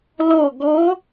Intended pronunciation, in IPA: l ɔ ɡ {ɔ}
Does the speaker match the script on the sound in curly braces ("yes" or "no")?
yes